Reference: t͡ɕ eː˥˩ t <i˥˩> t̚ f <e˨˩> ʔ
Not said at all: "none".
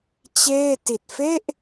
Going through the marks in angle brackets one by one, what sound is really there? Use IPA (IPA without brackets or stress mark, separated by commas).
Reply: i˨˩, e˥˩